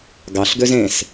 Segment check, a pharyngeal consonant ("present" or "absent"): absent